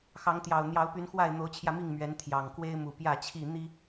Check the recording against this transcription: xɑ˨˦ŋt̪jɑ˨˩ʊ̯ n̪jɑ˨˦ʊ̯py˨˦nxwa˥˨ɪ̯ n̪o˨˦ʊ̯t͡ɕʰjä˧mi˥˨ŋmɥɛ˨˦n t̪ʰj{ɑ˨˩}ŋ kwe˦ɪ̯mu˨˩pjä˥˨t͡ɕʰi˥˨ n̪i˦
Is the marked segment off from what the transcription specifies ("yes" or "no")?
no